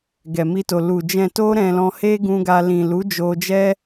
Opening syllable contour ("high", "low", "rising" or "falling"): low